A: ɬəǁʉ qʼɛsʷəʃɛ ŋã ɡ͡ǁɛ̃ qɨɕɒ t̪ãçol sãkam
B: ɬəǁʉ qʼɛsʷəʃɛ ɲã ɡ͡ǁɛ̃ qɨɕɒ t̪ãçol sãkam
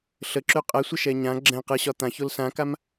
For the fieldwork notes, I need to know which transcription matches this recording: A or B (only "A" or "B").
B